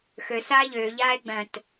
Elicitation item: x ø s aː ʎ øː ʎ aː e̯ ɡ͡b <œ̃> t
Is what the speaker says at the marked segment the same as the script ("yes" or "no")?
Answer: yes